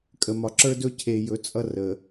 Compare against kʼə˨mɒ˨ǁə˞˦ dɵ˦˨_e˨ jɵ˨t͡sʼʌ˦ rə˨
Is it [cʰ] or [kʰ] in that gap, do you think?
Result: cʰ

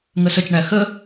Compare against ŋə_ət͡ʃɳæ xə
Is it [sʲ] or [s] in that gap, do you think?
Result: s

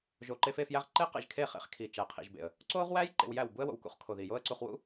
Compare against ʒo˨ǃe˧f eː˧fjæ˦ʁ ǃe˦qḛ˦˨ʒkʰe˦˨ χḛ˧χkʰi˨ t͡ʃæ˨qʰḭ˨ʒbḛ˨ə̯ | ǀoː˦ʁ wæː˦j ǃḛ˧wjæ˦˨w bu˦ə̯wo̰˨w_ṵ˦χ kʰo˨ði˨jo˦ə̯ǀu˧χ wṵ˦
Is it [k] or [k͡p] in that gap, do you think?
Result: k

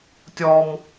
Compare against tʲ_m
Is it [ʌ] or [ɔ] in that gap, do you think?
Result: ɔ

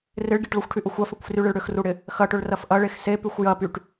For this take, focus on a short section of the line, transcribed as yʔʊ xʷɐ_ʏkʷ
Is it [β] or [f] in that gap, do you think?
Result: f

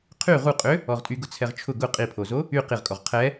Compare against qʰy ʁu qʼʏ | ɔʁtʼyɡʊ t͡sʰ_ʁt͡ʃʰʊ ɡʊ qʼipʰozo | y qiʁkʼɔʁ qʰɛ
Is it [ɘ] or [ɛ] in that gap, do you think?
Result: ɛ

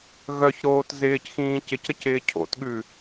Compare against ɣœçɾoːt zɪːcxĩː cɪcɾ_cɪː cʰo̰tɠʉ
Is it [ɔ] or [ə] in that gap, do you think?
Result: ə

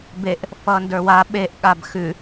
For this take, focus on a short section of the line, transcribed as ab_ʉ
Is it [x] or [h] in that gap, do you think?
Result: x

